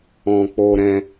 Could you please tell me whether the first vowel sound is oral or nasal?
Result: nasal